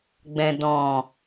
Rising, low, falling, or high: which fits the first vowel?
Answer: low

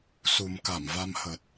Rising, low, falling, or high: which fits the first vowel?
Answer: low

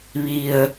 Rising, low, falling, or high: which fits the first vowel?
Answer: low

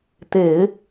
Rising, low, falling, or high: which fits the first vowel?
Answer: low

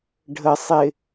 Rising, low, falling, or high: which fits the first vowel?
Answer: low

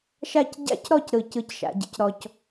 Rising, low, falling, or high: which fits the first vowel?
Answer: falling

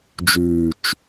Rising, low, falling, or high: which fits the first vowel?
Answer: low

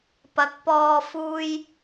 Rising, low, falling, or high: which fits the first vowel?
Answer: rising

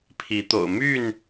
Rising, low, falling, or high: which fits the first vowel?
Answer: rising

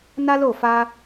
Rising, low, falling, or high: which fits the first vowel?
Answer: high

